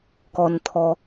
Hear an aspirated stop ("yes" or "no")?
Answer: yes